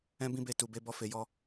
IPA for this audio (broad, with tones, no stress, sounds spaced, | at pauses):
ɛ̃˦ b ĩ˦ b e˧ t u˨ b e˧ b ɔ˧ f e˨ j ɔ˧